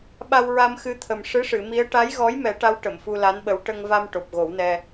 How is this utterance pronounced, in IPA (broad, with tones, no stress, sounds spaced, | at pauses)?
ɓ a˧ w ɹ a˧ m x ɨ˧˥ t̪ʰ ə˨˩ m ʂ ɨ˧˥ ʂ ɨ˨˩˨ m i˧˥ ə̯ ʈ a˧˥ j ɣ ɔ˧˥ j m ɛ˨˩˦ ʈ a˧˥ w ʈ ə˨˩˨ m f u˧ l a˧˥ n ɓ ə˧˥ w ʈ ə˧ ŋ v a˧ m ʈ o˨˩ p̚ ɣ o˨˩˦ w n ɛ˧